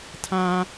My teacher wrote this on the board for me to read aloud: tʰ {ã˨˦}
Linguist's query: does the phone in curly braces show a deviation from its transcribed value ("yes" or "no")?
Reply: yes